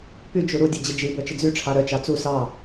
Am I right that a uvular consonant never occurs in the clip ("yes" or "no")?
yes